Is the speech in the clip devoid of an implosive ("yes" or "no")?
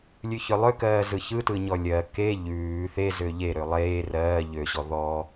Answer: yes